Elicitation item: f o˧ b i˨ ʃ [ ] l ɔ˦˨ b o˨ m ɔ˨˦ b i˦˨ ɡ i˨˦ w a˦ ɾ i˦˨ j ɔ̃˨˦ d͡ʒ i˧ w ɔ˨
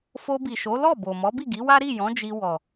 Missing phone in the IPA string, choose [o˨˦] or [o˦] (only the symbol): o˨˦